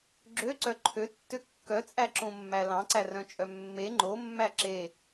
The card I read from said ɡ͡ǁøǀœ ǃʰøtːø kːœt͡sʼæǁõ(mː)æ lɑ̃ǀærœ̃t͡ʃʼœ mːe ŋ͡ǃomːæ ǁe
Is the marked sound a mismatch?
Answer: no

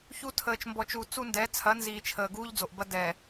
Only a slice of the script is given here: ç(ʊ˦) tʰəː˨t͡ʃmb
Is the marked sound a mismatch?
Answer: yes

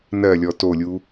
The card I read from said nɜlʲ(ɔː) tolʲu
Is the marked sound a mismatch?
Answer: yes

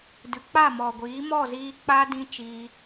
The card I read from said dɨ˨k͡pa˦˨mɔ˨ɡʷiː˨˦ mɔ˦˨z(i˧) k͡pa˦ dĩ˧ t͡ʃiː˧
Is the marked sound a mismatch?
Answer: yes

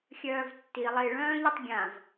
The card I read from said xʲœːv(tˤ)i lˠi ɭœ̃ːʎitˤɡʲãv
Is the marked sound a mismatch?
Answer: yes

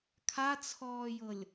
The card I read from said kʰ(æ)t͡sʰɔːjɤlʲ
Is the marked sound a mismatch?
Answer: yes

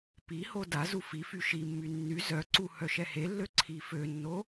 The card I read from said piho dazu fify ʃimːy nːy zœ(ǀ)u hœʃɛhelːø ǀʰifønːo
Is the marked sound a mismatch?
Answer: no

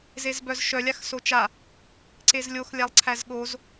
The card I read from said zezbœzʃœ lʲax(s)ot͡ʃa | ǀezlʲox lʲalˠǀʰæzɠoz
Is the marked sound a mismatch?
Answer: no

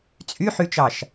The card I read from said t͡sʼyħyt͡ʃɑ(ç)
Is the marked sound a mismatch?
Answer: yes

